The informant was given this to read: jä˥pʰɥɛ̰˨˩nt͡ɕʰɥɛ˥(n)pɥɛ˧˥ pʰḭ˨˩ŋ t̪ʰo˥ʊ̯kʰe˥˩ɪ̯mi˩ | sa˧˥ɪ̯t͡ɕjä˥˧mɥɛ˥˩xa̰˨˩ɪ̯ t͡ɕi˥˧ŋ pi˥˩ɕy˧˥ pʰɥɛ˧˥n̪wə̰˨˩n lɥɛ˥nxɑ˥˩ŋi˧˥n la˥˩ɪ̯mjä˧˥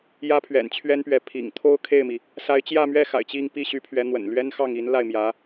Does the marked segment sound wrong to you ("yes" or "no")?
no